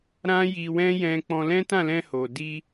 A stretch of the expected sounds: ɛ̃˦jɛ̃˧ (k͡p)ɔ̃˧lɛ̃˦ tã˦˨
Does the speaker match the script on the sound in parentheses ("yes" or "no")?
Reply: yes